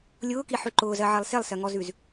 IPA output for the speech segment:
lʲ ʊː k i ħ ʉ ǃ ʊː z ɜ ʕ e lˠ s e lˠ s ɜ ŋ ɔ z ʉ z

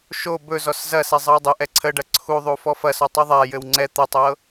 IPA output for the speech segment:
ʃ o b ɵ z ɔ s z ɐ s ɛ zˤ ɤ w dˤ ɘ ʔ ɛ ǀʰ ə ɖ ɐ ǀʰ u ðˤ u f ɔ f ɐ s ɔ tˤ u ðˤ a j ɘ w ŋ͡ǀ ɛ t̪ ə tˤ ɤ

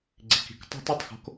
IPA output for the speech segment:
ɡ͡ǀ i˨ k i̤˨ k tˤ o̤˦ t ʏ˨ tˤ x o̤˦ k

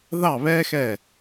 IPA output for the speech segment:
ð ɑ˥˨ β ɛ˥ x ɛ˧˩

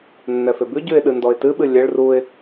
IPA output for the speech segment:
nː ɛ f e b ʉ ɟ ʉ ɪ̯ ɗ ɨ n d ɔ ɪ̯ t ɨ ɓ ɨ lʲ e ɭ r u ɪ̯

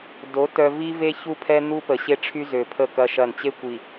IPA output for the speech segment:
d o˨˦ t œ˨ v i˦ v e˦ ç u˦ pʰ ɛ˦ n̪ u˦ p ə˨ ɕ e˦ ʈ͡ʂʰ y˦ z ø˨ pʰ ə˦˨ k ɐ˦ ʃ ɐ˦˨ n t͡ɕ e˦ kʷ i˨

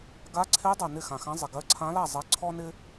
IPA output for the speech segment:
ɡ a˧˥ ǀʰ e˧˥ dˤ ɜ˨ n ɪ˥˨ x ã˨ x ã˧˥ zˤ ɪ˨ ɡ ɜ˧˥ ǀʰ ã˧˥ l a˥˨ zˤ ɜ˧˥ ǀʰ ɔ˥ n ɪ˥

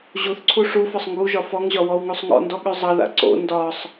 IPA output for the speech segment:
ʑ u θ ǀʰ u ʂ u f ɒ sˤ ŋ ɡ u ʒ ɒ f ɔ ŋ ʑ ɒ w ɔ w ŋ u sˤ ŋ ɔ̰ n d ɔ ɠ ʉ zˤ ʌ ð a̰ ǀ o̰ n d ɒ sˤ

